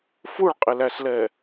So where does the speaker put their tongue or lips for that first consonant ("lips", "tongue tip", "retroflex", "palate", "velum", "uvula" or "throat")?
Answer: lips